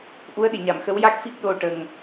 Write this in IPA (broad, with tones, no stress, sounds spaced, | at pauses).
ʔ u˧˥ ə̯ ɗ i˨˩˨ ɲ a˨˩˨ m x ə˧˥ w j a˦˥ k̚ f i˦˥ k̚ ɗ o˧ ʈ ə˨˩ ŋ